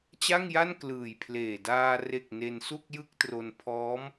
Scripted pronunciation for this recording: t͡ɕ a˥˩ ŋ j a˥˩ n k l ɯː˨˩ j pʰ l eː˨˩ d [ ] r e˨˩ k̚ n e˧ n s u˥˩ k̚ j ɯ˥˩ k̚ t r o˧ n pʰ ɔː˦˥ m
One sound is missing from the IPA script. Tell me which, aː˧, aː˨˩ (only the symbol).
aː˧